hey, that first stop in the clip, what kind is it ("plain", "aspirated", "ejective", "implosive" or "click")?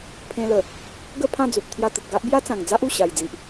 aspirated